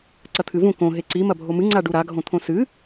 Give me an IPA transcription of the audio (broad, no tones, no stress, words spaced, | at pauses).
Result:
ǀɐt̪ʰɨvũ kõ ɦeǀi mɐbʱomɨ ŋ͡ǀaɖuɾa ɡʱõt̪ʰõsɨ